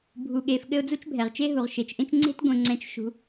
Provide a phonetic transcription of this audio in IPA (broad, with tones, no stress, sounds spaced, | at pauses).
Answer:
bʱ u˨ ɠ e˨ f ɠ ɘ˦ ʊ̯ d͡z u˥ t͡ʃ bʱ ɛ˩ ʁ t͡ʃ e˥ ɦ u˩ ʁ ʃ e˩ t͡ʃ ʔ ẽ˦ t͡ʃ ŋ͡ǀ e̤˥ t ɡʷ ẽ˨ ŋ͡ǀ ɛ̃˨ t͡ʃ ʃ ṳ˩